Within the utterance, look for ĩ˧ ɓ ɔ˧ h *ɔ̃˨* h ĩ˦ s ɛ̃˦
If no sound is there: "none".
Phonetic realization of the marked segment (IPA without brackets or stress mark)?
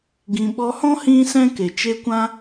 ɔ̃˦